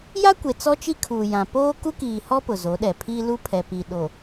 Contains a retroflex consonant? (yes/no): no